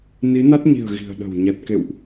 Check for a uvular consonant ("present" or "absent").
absent